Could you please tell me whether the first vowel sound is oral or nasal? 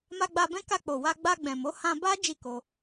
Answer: oral